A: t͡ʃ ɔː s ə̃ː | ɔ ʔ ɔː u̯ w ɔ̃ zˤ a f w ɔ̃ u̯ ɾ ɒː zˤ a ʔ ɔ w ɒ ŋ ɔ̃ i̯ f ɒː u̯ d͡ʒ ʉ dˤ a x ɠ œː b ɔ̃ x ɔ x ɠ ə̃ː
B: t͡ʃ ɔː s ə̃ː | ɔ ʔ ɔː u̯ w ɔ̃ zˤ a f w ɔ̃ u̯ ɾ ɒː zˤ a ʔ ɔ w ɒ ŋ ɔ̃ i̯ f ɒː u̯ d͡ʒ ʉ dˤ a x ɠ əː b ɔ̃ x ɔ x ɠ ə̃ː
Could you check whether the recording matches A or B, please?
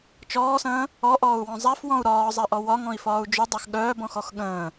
A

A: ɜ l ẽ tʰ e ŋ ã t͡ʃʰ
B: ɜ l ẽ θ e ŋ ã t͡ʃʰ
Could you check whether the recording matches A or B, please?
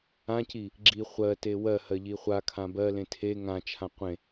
A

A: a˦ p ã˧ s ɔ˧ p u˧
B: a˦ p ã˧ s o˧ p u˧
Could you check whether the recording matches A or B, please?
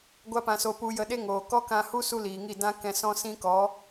B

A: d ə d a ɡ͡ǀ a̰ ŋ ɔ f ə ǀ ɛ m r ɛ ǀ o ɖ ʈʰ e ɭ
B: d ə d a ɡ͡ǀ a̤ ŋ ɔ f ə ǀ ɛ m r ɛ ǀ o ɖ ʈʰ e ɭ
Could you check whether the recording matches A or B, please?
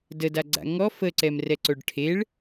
A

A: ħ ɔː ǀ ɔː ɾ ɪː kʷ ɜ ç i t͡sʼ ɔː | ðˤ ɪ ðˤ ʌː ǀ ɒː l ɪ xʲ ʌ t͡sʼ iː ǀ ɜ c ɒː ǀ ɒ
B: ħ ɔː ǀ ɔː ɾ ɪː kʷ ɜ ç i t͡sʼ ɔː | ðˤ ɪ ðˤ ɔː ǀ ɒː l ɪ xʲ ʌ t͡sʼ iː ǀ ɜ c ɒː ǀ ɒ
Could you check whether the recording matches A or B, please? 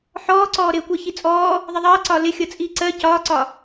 A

